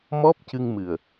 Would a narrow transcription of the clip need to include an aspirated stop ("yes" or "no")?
no